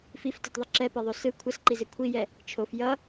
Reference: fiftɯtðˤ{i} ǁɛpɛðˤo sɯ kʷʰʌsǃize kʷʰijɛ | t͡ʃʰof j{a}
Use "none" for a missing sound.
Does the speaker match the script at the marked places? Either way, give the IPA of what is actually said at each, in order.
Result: i, ʌ

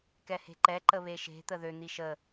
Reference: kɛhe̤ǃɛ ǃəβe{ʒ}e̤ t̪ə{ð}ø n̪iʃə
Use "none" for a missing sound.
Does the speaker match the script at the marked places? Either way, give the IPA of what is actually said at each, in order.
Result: ʃ, ð

